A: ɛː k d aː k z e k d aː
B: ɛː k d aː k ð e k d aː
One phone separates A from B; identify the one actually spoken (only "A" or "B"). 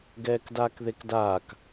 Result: B